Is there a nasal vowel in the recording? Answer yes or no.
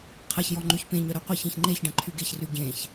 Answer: yes